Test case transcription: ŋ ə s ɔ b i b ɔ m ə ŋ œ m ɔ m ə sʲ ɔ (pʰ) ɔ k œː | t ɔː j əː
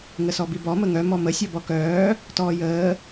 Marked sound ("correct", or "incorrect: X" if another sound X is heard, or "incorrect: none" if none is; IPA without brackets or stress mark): incorrect: b